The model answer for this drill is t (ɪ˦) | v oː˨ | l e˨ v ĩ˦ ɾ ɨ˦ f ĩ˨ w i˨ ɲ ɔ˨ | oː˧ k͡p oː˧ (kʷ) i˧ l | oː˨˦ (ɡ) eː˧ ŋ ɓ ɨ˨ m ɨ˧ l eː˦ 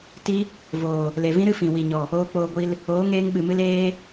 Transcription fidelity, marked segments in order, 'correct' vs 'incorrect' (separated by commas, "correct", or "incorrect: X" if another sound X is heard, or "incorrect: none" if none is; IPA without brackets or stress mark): incorrect: i˦, incorrect: ɡʷ, incorrect: ŋ